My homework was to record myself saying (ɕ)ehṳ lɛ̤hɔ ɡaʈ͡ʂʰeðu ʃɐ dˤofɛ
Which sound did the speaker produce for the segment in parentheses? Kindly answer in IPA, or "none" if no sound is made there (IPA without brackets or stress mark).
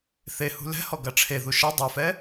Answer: θ